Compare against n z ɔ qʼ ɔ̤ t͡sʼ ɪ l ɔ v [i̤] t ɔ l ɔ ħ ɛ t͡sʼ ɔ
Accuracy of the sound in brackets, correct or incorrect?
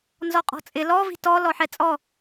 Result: correct